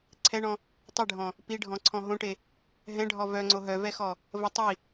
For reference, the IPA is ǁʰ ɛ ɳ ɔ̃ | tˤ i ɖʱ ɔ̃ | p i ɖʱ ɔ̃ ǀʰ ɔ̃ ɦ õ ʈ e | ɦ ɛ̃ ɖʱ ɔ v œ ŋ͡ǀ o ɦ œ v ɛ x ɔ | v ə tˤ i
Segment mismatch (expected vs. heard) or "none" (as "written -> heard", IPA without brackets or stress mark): ǁʰ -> ǀʰ